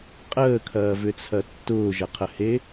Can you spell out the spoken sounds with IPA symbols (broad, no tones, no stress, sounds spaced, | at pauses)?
qʼ əː kʰ ɐː v ʏ t͡sʰ ɐ tː ʊː ʒ ɐ qʰ ə h e